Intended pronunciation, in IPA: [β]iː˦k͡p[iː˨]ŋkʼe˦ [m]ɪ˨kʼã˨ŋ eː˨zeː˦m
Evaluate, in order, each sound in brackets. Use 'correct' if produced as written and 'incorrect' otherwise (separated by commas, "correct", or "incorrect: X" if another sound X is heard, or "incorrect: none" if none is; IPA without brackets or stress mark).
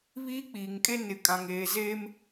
correct, correct, incorrect: n